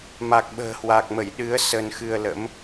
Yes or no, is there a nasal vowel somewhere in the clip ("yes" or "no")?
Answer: no